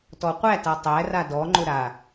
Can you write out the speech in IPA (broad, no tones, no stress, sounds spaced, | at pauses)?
t ɔ qʷ æ t a tˤ æ r a d ɔ ŋ͡ǃ ʊ ɾ a